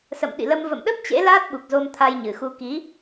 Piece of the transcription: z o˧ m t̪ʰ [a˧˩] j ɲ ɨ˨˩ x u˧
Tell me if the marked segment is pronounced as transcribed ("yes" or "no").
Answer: no